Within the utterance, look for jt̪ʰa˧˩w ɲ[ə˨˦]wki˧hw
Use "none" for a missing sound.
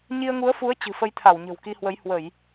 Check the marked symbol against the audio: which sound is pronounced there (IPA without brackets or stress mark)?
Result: ə̤˨˩